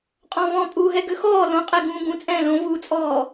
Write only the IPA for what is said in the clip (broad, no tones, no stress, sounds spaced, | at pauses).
qʼ ɔ̃ v ɔ̃ pʼ uː ɦ ɛ ɡ ø x ɔː l õ qʼ ɛ ɡ ũː ɡ ũ t͡sʼ ɛ̃ː l õ v uː t͡sʼ ɔː